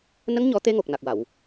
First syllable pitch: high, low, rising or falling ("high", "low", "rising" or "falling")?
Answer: rising